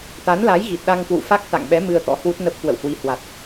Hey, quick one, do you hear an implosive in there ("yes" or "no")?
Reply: yes